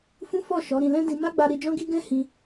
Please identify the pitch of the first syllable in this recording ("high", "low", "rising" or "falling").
high